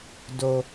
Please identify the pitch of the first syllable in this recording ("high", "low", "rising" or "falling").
low